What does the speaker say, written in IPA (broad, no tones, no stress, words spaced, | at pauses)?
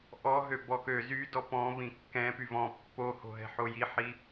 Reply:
ʔɔɦø bɔkø zydɔ pɔ̃vĩ kːɛ̃ pyvɔ̃ pːoho̤ɦɛ̤ħo jiħi